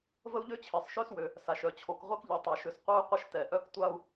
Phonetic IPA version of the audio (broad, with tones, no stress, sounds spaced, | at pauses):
v ə˥ u̯ ʎ ø˥ t͡ɕʰ e˩ sˤ ʃ ø˥ s w ø˩ | s a˩ ʃ œ˩ t͡ɕʰ o˩ k ʁʷ ɛ˥ k ʎ ɛ˩ tˤ ɛ˩ ʃ ø˩ s qʷ œ˥ y̯ qʷ ə˥ ʃ t ɛ˩ ʔ œ˥ k tʷ a˥ u̯